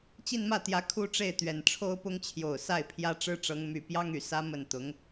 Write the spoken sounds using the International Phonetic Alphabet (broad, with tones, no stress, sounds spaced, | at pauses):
t͡ɕ i˥˧ n m ä˥˩ t̪ j ä˧˥ kʰ u˥ ʈ͡ʂ e˥˩ ɪ̯ t̪ ɥ ɛ˨˩ n ʈ͡ʂʰ o˥ ʊ̯ p ʊ˥ ŋ t͡ɕʰ j o˨˩ ʊ̯ s a˥˩ ɪ̯ pʰ j ä˥ ʈ͡ʂ ɻ̩˥ ʈ͡ʂ ɤ˧˥ ŋ m y˨˩ p j ɑ˥ ŋ y˨˩ s ä˥ m ə˥˩ n t̪ ʊ˧˥ ŋ